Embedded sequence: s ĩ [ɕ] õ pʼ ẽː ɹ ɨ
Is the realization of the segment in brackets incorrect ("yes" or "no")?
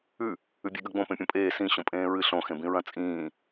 no